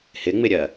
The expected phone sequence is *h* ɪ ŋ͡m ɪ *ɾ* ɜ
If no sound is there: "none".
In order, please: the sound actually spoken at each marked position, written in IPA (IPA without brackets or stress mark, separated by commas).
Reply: h, ɾʲ